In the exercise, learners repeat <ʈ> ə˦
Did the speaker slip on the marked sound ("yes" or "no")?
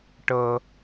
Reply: no